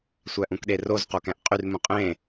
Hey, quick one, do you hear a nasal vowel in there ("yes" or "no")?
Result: yes